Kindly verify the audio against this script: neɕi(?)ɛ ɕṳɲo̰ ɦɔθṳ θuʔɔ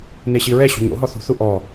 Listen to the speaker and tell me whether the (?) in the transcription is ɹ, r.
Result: ɹ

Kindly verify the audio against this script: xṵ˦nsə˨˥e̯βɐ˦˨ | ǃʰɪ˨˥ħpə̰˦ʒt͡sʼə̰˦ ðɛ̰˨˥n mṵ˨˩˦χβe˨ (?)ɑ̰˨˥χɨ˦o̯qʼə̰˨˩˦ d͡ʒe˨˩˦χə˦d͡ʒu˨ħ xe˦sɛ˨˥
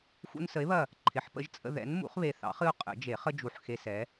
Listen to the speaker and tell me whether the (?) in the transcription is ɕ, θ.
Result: θ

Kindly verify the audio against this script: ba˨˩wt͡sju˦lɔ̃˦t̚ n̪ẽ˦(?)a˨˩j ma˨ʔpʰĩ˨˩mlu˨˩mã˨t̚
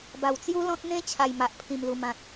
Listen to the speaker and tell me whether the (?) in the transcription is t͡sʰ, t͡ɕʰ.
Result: t͡ɕʰ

